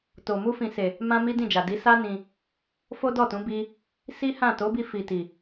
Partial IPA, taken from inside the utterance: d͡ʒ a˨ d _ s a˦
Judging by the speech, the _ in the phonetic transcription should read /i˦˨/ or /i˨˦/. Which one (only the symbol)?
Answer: i˨˦